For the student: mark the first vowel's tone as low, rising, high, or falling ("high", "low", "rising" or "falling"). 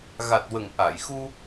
low